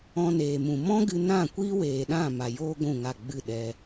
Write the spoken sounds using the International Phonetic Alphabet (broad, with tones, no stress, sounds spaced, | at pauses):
ɔ̃˧ n eː˨ m ũ˨ m ɔ̃˦ ɡ ɨ˧ n ã˦˨ kʷ iː˦ w eː˨ ɗ ã˦˨ m a˨ j oː˦ ɡʷ ũ˦˨ ŋ a˦˨ ɡ͡b ɨ˦˨ ɗ ɛ˧